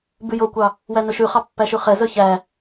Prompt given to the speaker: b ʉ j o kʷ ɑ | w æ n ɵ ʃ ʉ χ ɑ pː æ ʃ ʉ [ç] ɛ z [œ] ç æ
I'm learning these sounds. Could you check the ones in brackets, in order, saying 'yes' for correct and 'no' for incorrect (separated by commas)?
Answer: no, yes